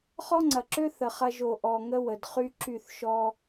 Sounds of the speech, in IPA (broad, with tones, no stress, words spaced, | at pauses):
χɔ˦ŋ͡ǀɐ˨ǁø˦ θə˨χɐ˧ ʒo˨ʔɔ˨ŋə˦ wə˨dχy˦ǁy˦˨θ ʃɔ˦